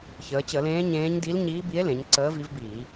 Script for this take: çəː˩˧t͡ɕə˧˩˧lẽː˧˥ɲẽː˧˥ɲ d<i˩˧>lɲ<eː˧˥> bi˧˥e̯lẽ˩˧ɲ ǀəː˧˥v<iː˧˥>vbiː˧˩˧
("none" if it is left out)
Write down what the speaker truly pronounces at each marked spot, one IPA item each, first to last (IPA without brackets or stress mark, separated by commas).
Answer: i˧˥, iː˧˥, i˧˥